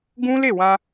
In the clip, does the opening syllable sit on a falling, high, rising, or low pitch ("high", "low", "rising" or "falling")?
high